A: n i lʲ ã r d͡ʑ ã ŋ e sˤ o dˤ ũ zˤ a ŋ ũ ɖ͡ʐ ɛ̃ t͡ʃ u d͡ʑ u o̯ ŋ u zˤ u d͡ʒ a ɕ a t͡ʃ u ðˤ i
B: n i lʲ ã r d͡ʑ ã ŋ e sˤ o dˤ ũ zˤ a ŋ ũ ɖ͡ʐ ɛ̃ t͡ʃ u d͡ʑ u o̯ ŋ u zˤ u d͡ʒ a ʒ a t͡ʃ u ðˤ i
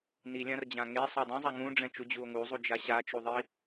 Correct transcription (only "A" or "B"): A